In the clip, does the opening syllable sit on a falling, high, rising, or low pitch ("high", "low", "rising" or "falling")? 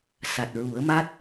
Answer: low